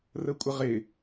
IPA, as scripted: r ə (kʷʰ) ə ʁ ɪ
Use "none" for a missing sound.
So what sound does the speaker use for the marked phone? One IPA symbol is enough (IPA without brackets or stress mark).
kʷʼ